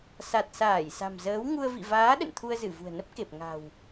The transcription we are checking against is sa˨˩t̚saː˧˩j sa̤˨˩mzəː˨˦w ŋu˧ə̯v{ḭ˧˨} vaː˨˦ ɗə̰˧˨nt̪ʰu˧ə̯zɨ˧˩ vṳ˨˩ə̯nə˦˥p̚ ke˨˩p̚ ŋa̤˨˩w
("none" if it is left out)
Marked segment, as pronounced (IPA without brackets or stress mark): ḭ˧˨